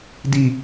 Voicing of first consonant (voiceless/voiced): voiced